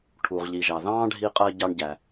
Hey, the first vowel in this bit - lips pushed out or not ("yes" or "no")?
yes